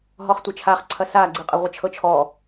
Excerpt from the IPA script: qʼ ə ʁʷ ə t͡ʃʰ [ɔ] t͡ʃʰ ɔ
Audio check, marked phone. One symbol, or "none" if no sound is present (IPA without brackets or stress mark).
ɤ